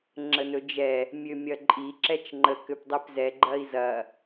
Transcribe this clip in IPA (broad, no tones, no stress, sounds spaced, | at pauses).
ŋ͡ǁ ə n ɵ d͡ʒ ɛ | mʲ ø mʲ ɐ ǃʼ i ǁ ɛ t͡ʃ ŋ͡ǃ ə k ø p dˤ i p z ɛ ɡ͡ǃ ɐ i̯ z ɐ